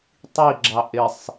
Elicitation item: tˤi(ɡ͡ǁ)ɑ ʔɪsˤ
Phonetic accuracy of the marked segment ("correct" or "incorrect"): correct